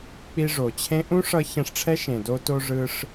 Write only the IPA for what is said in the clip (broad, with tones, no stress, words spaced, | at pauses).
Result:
k͡pi˧ʐo˨t͡ɕʰẽ˦ ʔũ˦ʂʌ˧ çɛ̃˧ʂʈ͡ʂʰɛ˦ʃẽ˨ do˧to˧ ʐɯ˧ʂ